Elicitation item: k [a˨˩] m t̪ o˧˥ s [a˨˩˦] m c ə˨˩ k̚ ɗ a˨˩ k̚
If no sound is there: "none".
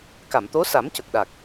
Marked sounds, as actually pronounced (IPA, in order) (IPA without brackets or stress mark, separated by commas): a˨˩˨, a˨˩˦